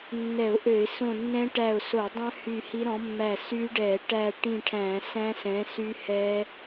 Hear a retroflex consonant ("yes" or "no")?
yes